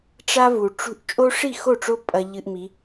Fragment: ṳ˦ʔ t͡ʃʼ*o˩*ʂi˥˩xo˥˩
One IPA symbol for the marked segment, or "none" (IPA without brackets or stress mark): o˦